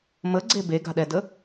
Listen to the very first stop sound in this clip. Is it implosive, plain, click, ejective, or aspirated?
click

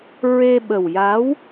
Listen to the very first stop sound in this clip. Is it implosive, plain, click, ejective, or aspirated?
implosive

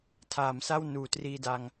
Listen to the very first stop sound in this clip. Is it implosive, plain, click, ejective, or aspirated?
aspirated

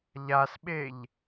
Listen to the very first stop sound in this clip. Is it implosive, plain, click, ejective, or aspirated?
implosive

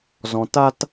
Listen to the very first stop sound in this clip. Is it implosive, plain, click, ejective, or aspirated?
plain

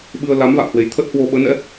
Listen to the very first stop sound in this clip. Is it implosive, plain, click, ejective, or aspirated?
implosive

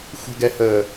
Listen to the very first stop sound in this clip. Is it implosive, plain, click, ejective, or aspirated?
plain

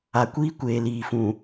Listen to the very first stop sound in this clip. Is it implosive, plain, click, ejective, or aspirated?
plain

